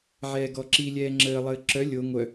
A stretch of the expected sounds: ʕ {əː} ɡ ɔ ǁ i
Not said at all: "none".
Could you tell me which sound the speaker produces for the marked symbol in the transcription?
ɛː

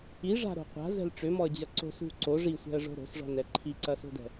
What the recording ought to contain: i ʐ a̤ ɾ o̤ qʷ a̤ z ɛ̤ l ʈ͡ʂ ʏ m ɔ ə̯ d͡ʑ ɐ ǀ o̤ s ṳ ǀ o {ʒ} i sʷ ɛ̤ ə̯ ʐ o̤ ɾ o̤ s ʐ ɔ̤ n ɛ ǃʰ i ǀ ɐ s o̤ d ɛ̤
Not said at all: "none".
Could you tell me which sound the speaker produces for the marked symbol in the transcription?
ʐ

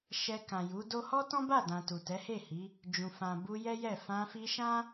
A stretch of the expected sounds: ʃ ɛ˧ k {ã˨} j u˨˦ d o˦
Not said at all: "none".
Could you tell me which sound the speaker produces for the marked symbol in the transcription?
ã˨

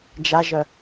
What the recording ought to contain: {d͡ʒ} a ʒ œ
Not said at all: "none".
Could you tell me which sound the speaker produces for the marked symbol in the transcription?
d͡ʒ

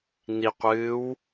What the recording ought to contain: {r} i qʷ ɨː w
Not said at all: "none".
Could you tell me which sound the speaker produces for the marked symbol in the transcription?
n̪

